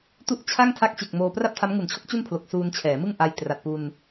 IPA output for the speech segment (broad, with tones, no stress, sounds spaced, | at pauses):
t u˥˩ ʔ t͡ɕʰ a˥˩ ŋ tʰ a˦˥ k̚ t͡ɕ e˨˩ k̚ m oː˧ p r a˥˩ p̚ tʰ a˦˥ m ŋ u˨˩ n t͡ɕʰ o˦˥ k̚ t͡ɕ u˥˩ n pʰ l o˨˩ k̚ s uː˧ n t͡ɕʰ ɛː˩˦ m ɯ˥˩ ŋ ʔ a˧ j t r a˨˩ t̚ p u˧ n